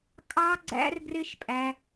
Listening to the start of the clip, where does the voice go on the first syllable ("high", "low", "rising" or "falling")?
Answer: high